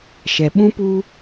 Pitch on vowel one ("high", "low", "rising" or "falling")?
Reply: low